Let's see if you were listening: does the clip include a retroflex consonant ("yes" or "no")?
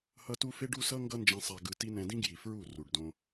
yes